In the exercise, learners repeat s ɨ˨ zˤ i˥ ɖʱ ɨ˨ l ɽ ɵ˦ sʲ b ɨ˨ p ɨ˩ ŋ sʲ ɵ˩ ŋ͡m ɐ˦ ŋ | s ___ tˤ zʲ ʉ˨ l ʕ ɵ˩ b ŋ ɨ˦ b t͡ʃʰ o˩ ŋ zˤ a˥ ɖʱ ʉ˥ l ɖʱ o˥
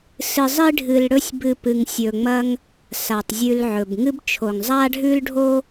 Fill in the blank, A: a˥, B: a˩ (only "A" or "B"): B